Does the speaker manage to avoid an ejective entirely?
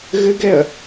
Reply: yes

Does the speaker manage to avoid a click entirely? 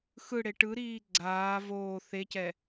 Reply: no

